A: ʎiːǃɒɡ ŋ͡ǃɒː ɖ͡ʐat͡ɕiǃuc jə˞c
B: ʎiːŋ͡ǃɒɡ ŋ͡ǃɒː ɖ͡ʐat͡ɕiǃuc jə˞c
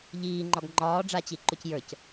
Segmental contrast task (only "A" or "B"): B